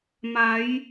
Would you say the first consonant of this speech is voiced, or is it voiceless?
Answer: voiced